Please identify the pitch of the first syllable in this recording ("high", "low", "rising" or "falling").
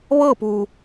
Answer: falling